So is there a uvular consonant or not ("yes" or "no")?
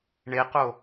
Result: yes